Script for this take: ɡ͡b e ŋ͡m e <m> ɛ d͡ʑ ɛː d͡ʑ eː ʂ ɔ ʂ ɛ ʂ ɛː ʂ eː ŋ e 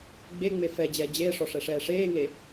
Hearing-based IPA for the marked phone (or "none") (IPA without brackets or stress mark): f